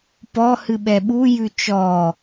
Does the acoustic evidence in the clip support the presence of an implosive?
yes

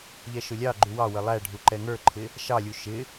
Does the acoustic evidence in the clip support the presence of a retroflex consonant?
yes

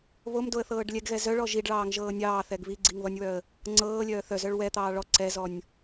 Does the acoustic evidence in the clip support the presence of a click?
yes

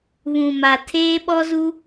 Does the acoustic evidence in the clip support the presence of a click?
no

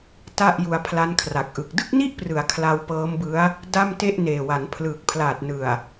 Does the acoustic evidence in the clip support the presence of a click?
no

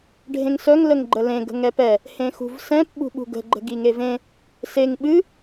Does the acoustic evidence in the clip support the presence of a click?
yes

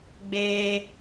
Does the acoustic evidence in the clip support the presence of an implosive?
no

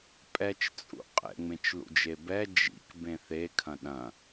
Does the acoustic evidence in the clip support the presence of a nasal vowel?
yes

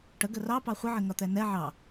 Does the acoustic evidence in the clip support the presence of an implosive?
no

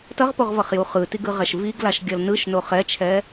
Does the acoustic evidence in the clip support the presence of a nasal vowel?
no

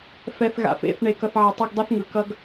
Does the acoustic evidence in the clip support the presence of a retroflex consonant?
yes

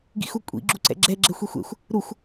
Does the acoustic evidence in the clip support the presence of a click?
yes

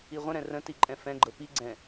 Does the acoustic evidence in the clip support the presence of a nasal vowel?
yes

